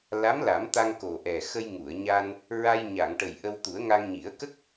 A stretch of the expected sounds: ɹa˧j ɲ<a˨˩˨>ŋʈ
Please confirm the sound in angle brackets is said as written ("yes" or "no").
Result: yes